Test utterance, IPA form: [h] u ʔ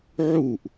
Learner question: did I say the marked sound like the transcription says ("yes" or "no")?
no